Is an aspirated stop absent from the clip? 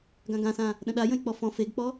yes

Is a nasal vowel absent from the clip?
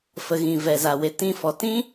no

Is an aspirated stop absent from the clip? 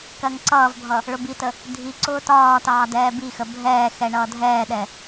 yes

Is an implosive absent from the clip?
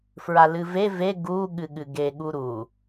no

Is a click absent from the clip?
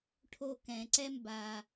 no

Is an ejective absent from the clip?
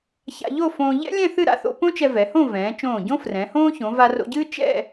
yes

